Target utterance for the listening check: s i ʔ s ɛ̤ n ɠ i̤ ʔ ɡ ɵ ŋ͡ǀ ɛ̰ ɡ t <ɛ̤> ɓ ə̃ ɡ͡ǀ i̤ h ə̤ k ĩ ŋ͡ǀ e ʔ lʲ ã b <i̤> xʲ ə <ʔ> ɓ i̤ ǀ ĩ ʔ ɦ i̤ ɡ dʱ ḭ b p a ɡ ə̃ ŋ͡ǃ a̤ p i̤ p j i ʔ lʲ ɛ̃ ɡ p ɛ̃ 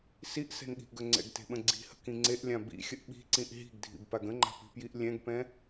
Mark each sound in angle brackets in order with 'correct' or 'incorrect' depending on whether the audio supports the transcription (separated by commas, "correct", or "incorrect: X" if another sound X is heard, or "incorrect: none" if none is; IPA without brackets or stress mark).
incorrect: e̤, incorrect: ḭ, correct